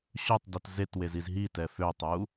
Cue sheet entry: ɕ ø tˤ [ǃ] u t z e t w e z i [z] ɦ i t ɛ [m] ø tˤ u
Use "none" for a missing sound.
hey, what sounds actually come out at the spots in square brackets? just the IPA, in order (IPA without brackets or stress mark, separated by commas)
d, z, f